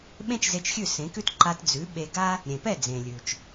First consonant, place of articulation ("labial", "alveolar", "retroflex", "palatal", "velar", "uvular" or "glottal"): labial